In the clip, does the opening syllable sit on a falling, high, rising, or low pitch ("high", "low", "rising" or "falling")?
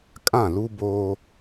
falling